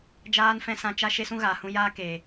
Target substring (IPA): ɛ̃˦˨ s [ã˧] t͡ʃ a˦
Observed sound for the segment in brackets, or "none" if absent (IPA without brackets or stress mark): ã˧